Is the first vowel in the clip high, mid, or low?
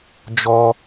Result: mid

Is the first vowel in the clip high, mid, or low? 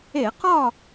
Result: mid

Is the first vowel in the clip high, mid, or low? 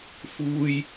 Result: high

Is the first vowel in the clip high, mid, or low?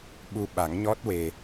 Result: high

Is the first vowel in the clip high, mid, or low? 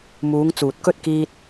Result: high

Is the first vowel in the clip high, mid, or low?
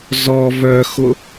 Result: mid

